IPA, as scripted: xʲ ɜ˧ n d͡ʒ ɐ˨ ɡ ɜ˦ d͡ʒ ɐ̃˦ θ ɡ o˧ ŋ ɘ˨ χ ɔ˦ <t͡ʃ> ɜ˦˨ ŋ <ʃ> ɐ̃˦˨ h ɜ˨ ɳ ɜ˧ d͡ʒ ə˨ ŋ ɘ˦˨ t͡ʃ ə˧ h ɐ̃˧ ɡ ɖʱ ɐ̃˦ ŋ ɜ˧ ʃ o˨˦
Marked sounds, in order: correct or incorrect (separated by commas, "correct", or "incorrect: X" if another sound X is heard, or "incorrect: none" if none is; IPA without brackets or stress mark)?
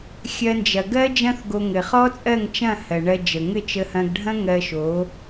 incorrect: t͡sʼ, incorrect: t͡ʃ